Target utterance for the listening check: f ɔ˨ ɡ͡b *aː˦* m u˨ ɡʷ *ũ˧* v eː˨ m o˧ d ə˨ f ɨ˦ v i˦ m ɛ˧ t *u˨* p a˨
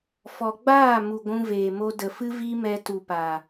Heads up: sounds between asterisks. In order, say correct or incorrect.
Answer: incorrect: aː˦˨, correct, correct

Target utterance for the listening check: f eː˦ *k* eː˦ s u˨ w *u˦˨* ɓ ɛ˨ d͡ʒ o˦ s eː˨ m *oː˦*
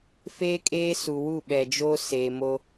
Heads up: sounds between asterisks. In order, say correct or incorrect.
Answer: incorrect: kʼ, correct, incorrect: o˦

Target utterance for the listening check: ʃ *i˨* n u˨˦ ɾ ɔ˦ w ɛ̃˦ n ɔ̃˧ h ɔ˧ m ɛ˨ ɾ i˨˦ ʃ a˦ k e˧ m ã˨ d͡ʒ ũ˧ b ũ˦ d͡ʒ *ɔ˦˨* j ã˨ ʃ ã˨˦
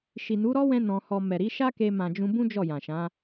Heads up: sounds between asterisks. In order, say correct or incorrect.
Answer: correct, correct

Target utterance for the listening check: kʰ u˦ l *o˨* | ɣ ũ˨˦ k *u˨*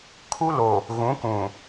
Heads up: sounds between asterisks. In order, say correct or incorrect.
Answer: correct, incorrect: ũ˨

